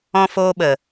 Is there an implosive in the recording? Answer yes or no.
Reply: yes